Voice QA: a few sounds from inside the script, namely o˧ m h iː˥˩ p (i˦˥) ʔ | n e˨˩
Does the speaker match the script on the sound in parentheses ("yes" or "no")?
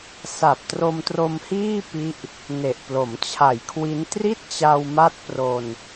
yes